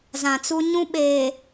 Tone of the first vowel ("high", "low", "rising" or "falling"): low